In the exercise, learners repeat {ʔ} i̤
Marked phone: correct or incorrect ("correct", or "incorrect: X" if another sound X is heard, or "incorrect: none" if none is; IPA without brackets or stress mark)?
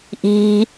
correct